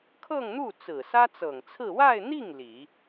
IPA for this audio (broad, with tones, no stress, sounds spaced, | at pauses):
kʰ ɤ˥˧ ŋ n̪ u˥˩ t͡s ɹ̩˨˩ s ä˥ t͡s ɤ˨˩ ŋ t͡sʰ ɹ̩˥˧ w a˥˧ ɪ̯ n̪ i˥˩ ŋ l i˨˩˦